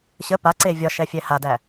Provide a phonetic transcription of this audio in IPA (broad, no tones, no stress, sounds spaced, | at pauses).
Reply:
ɕ ə p a ǀ e vʲ ɒ ʃ ɛ fʲ ɛ h a d æ